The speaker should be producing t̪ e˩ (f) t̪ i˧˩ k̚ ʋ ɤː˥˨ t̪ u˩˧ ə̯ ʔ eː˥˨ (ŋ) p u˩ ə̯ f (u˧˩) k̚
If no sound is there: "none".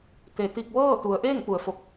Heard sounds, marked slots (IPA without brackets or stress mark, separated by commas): none, ŋ, o˧˩